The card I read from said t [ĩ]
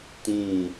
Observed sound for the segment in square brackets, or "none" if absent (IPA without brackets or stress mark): ĩ